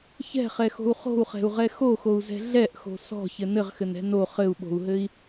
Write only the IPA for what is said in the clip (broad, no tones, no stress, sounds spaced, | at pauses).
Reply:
ç ɛ̤ χ ɛ x o̤ u̯ χ o̤ u̯ χ ɛ̤ u̯ ʁ ɛ x o x o u̯ z ɛ̤ ɮ ɛ ʔ x o̤ s ɔ̤ ç ɘ n ɘ ʁ x ɘ n ɛ̤ n o χ ɘ u̯ ɓ o̤ u̯ ɦ ɘ i̯